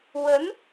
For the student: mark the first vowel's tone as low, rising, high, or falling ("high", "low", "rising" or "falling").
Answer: rising